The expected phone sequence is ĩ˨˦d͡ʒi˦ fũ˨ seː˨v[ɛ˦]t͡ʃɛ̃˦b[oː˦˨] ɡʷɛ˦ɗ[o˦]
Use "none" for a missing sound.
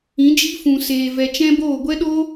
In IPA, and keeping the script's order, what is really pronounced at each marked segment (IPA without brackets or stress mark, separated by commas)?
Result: ɛ˨, oː˦˨, o˦